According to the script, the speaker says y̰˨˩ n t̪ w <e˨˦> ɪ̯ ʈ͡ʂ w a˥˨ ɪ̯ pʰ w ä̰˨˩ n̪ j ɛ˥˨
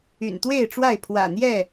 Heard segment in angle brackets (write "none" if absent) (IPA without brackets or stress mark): e˥˨